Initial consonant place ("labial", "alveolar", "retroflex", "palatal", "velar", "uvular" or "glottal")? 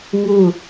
velar